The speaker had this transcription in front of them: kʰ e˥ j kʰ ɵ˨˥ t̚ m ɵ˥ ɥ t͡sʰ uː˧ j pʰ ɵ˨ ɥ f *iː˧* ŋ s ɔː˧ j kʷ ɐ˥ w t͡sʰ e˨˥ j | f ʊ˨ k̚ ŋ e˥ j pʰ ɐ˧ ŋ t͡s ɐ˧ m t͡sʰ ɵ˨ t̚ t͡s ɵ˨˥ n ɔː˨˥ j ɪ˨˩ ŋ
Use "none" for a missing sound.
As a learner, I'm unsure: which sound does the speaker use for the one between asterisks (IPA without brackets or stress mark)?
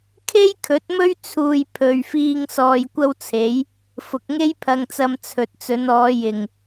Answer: iː˧